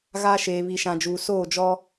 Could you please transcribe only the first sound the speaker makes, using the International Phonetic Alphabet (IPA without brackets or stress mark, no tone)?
ɣ